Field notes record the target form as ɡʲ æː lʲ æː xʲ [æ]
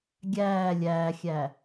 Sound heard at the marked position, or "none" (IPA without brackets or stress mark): æ